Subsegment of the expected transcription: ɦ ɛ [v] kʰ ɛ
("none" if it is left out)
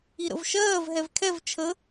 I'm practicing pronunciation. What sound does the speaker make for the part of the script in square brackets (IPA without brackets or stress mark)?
v